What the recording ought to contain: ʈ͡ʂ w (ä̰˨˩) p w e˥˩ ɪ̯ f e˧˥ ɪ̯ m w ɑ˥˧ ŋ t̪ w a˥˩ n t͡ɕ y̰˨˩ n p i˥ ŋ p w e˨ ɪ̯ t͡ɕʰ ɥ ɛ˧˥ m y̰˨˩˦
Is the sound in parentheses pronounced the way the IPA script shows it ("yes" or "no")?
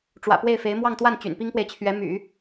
yes